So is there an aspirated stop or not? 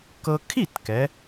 yes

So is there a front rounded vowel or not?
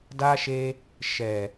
no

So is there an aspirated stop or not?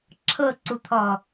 yes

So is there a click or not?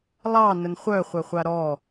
no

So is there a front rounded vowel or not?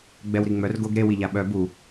yes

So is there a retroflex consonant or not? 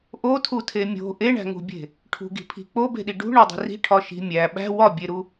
yes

